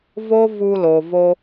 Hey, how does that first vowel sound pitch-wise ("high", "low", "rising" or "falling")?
high